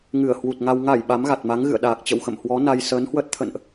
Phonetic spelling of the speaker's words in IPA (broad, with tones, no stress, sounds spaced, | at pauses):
ŋ ɨ˧˩ ə̯ h w u˨˩ t̚ ŋ a˧ w ŋ a˧˩ j ɓ a˨˦ m ɣ a˨˩ t̚ m a˨˦ ŋ ɣ ɨ̰˧˨ ə̯ ɗ aː˨˩ k̚ t͡ɕ ə̰˧˨ w x ə̰˧˨ m h w ɔ˨˦ n a˧ j s əː˨˦ n h w əː˦˥ t̚ t̪ʰ ə̰˧˨ n ʔ